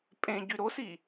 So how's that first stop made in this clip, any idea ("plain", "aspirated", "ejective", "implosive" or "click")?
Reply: ejective